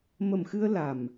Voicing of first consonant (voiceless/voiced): voiced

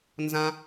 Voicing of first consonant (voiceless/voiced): voiced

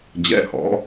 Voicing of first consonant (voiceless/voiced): voiced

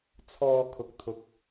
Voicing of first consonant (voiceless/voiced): voiceless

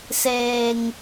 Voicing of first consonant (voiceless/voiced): voiceless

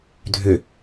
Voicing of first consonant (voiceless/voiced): voiced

